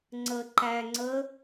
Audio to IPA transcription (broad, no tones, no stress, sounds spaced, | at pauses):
ŋ͡ǀ ə ǃ æ ŋ͡ǀ ə